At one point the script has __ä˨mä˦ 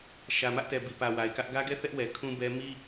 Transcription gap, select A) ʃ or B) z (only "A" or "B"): A